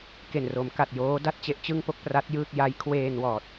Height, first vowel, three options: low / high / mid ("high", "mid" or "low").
mid